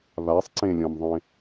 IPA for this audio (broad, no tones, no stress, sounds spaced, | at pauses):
β a sˤ ǀ ẽ lʲ ɔ̃ m ðˤ ẽ